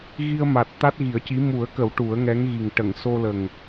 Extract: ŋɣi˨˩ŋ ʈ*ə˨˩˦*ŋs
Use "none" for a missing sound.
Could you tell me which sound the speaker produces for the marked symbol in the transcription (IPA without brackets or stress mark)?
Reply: ə˨˩˨